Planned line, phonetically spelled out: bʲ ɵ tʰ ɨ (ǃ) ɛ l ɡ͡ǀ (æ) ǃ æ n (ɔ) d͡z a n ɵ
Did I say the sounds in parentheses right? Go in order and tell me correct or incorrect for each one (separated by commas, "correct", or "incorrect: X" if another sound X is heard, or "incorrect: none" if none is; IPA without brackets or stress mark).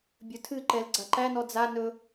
correct, incorrect: a, correct